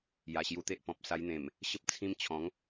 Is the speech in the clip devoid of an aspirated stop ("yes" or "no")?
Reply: no